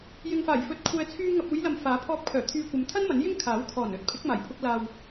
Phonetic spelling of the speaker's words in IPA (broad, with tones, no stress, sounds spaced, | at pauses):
j ɪ˨ ŋ f aː˨˩ j f ɵ˨˥ t̚ kʷʰ ɛː˨ t͡sʰ yː˧ ŋ ɐ˨ p̚ uː˨˧ j l ɐ˨ m f aː˨˥ pʰ ɔː˧ p̚ kʰ œː˨˩ t̪ʰ yː˧ kʷ ɐ˨˧ m t̪ʰ ɐ˥ n m ɐ˨˥ n j ɪ˥ ŋ kʰ aː˨˥ w kʰ ɔː˨˩ n ɵ˨˥ t̚ pʰ ɪ˨˥ k̚ m aː˨˩ j pʰ ʊ˧ k̚ l aː˨ w